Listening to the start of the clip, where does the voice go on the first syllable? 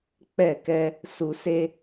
falling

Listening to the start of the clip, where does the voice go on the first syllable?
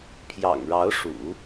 low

